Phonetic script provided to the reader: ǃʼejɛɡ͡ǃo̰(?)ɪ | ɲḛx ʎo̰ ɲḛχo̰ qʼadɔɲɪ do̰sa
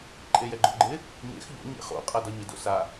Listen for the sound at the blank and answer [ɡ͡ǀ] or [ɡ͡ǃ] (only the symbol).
ɡ͡ǃ